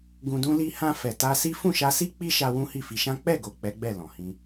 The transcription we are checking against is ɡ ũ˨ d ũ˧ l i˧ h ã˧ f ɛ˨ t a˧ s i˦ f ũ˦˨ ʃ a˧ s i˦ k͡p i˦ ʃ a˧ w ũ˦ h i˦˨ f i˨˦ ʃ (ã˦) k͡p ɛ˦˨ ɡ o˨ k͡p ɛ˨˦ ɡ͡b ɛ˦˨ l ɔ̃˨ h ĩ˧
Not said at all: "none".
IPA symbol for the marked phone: ã˦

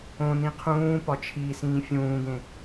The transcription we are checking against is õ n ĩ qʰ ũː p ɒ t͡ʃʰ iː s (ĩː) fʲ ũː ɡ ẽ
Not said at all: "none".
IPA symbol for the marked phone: ĩː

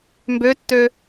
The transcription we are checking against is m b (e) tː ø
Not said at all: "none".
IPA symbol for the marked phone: ø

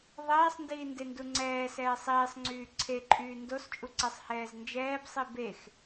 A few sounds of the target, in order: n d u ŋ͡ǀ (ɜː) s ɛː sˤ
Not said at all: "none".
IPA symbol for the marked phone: ɛː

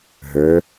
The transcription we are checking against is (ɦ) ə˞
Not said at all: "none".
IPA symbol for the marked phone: ɦ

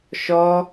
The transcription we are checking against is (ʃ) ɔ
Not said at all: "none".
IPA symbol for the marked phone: ʃ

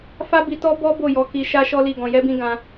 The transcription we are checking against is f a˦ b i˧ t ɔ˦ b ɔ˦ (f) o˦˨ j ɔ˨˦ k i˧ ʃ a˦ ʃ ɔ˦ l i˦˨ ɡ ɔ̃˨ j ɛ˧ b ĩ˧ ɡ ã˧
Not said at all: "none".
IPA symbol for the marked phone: b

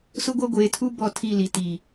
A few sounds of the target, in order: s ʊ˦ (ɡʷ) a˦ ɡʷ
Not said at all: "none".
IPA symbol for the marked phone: ɡʷ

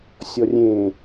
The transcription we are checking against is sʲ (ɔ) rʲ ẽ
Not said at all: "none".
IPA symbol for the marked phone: ɔ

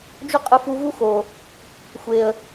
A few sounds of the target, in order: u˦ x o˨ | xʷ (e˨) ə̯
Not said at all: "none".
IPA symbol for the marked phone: e˨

